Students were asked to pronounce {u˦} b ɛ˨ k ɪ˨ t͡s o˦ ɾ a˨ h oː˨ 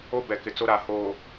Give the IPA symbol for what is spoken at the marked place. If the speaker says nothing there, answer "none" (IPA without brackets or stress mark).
o˦